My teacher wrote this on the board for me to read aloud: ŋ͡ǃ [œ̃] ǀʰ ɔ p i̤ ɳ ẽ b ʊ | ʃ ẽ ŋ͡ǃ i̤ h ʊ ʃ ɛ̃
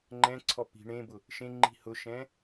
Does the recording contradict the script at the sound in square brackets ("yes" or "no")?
yes